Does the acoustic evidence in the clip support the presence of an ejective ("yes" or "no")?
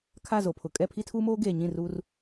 yes